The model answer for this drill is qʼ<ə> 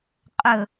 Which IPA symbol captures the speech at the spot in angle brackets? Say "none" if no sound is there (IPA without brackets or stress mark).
ɵ